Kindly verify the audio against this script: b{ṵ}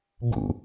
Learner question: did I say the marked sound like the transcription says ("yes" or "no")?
yes